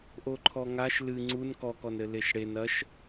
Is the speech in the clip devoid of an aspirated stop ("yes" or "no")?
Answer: no